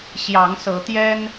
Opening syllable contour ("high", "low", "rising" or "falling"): rising